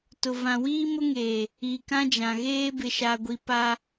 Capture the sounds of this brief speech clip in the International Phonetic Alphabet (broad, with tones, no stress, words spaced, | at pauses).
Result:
tʊ˨vã˨wiː˦ mʊ˦ŋeː˨ | i˨ kã˦d͡ʒã˨ɣeː˦ bɪ˨ʃa˨ɡʷi˨ pa˦